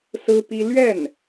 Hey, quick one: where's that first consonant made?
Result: tongue tip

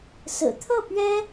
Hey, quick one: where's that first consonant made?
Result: tongue tip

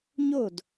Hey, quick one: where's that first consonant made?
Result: palate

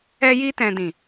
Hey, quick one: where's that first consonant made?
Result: palate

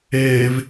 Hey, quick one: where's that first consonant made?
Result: lips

